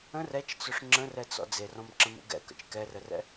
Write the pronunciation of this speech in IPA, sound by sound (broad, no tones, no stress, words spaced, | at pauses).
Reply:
ə̃r ɛt͡ʃt͡sʊʂ ŋ͡ǁə̃rɛt͡sɔ̰ d͡zerɔ̃mǁə̃mṵ ɡɛ̰kə̰t͡ʃ kɛrərɛ̰